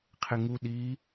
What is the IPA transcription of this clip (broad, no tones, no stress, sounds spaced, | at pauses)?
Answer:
qʰ ɪ ŋ u ɗ i